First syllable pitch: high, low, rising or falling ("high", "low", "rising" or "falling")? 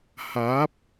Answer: rising